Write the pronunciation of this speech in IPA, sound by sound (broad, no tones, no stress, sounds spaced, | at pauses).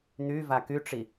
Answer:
n̪ y v a k y ʈ͡ʂ i